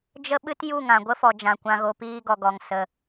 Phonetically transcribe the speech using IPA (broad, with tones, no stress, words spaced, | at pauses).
d͡ʒə˧ ɓɨ˦t ju˦˨ŋã˨ɡʷə˦fɔ˨ d͡ʒã˨kʷã˨ɣo˨ piː˧ɡɔ˨ɡɔ˨ŋ sə˨